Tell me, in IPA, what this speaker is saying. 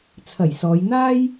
t͡sʰ ɐ˨˩ j s ɔː˨˧ j n̪ aː˥ j

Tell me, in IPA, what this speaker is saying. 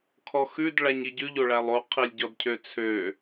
kʰ ɔ x ʉ d ɭ æ ɲ i ɟ ʉ ʎ o ɭ æ lˠ o qʰ i lʲ ɟ ɔ d cʰ ø t͡sʰ ø

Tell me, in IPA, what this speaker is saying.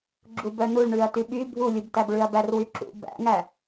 ɡ͡ǁ u b œ n u ɭ ɳ ʉ ɐ̯ t y ɓ y bʱ u lʲ u b t æ b ɭ ʉ ɐ̯ b æ r w y ǁ ṵ b æ̰ ŋ æ

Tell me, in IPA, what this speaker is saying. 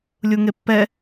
lʲ u ŋ e pː ɛ

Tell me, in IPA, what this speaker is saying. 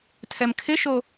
tʰ ɛ m kʰ ɪ ʃ o

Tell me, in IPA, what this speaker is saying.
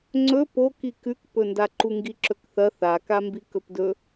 ŋ͡ǀ ɵ p o k i k ʉ k p ɵ n d a ǃ u ŋ ɡ i ǁ ɵ k θ ɐ θ a k a m b i k ɵ p d ɵ

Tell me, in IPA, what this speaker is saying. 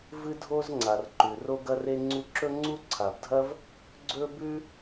v ɨ˥ dʱ o˥ z ŋ͡ǀ a˩ r ǃ ʉ˩ r o˥ ɡ ɐ˥ r e˥ ŋ͡ǀ u˥ ǁ ɵ˥ ŋ͡ǀ u˥ ǀʰ a˩ b dʱ ɐ˥ v | ɡ͡ǀ ɵ˥ b ʉ˥

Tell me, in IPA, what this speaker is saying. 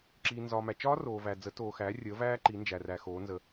ǁ iː˨ n z ɒː˨ m æ˨ t͡ʃ ɒː˦˥ r oː˨ v æ˨ d͡z ə˩˥ t oː˨ x æː˩˥ rʲ əː˩˥ v æː˦˥ ǃ i˩˥ n d͡ʒ æ˨ r æ˨ x oː˩˥ n z ə˨

